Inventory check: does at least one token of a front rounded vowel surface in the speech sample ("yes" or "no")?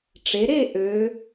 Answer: yes